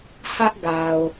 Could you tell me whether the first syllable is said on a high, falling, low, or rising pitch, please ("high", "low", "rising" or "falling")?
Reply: high